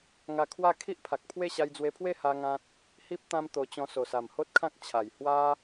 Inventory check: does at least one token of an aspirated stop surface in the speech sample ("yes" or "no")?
yes